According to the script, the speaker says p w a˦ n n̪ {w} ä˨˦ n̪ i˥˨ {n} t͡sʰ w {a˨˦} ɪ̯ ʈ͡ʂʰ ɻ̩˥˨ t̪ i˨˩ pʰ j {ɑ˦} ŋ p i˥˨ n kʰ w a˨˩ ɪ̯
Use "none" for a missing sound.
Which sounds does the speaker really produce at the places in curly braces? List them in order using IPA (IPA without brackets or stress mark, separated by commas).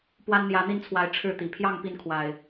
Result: j, n, a˨˦, ɑ˥˨